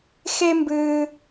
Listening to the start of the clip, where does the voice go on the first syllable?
high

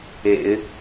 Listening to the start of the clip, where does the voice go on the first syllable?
low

